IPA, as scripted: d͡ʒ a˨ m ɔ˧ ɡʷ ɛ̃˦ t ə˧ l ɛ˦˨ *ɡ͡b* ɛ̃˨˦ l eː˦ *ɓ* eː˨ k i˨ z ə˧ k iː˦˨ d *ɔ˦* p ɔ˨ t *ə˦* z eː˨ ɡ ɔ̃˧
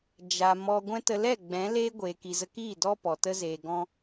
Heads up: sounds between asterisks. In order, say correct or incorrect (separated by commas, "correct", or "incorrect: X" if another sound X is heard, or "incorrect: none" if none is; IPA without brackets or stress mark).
correct, incorrect: ɡʷ, correct, incorrect: ə˧